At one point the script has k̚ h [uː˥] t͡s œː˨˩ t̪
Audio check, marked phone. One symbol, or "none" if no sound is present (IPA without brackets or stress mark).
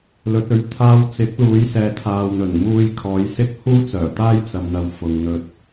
uː˥